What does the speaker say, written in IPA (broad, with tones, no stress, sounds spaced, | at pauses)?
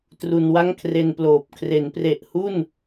t r u˧ n w a˥˩ ŋ kʰ r e˧ n p l oː˨˩ p̚ kʰ r e˩˦ n p r e˨˩ ʔ h u˥˩ n